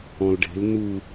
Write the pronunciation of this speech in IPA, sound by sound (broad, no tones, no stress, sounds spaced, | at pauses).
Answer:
ɔ̃ l ɖ e̤ l n u